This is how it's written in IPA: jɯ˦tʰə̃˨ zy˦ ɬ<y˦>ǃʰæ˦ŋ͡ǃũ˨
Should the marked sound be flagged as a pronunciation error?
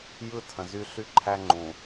no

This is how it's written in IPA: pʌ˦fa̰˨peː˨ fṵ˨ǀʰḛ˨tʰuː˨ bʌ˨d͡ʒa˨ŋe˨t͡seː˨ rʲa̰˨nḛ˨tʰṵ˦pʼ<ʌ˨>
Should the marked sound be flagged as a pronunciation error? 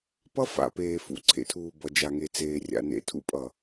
no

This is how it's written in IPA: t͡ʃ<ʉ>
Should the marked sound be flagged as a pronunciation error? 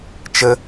yes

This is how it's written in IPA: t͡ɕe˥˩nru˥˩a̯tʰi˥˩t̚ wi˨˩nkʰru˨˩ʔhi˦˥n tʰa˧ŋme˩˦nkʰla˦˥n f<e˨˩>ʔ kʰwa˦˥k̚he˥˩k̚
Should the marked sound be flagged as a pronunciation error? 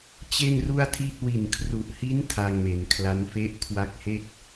yes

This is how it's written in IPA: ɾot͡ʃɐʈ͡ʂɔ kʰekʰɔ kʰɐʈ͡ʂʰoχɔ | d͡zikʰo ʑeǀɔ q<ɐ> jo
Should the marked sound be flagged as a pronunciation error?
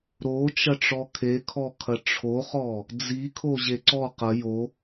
no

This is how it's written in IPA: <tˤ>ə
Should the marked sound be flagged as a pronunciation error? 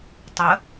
no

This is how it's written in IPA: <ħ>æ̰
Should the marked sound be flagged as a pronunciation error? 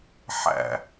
no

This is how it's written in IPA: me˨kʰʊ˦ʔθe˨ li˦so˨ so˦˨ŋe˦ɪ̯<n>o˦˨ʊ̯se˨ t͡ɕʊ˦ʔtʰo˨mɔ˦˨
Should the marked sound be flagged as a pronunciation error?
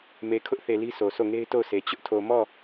yes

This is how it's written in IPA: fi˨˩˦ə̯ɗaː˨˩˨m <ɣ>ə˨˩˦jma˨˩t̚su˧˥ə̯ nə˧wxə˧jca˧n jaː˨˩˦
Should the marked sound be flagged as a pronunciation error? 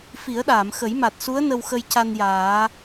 yes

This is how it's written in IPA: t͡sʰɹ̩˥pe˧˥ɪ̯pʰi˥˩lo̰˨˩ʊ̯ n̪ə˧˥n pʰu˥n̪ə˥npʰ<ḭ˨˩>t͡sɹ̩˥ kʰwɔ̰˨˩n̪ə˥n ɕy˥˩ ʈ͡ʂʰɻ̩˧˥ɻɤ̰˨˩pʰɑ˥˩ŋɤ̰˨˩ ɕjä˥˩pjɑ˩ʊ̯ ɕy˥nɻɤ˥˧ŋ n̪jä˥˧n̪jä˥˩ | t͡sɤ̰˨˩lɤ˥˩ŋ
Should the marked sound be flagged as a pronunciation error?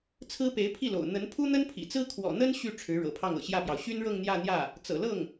no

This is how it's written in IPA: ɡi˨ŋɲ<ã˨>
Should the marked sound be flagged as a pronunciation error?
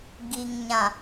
no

